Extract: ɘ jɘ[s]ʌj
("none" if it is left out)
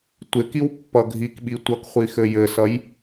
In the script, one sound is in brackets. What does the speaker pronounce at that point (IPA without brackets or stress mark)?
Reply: s